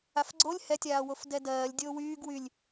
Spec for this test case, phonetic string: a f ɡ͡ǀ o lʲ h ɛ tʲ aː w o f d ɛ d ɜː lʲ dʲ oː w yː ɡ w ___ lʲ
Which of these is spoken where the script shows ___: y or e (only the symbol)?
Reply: y